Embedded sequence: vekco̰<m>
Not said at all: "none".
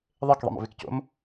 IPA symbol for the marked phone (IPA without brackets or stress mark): m